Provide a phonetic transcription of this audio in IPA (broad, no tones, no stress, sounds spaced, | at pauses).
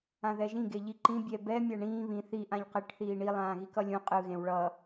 ã ð ɛ ʒ ĩ ɡ e ʎ i ǃ ĩ bʲ ɛ b ɛ mʲ a ɳ ĩː β ĩ θ i ʔ ã ʎ q e ʈ θ iː ɳ i lˠ ãː ɣ i k ʌ lʲ ũ qʼ ɯ ɣ ẽ w ɭ ʌ